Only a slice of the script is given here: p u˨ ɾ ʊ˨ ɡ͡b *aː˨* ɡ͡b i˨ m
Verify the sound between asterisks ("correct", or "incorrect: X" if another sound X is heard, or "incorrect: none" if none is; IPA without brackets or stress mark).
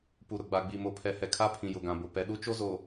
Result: incorrect: a˨